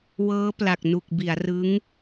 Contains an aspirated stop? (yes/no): no